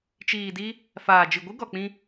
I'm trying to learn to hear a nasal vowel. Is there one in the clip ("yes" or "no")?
yes